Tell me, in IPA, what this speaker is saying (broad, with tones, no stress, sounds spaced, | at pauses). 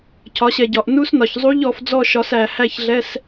cʰ ɒ˨˦ ɕ ɛ˨ ɟ ɒ˨ ʔ n u˦˥ s n ɒ˨ ç zˤ u˦˥ ʎ ɔ˨˦ f d͡z ɔ˥˨ ʃ ɒ˨˦ s æ˨ h æ˥˨ ç ɮ ɛ˧˥˧ s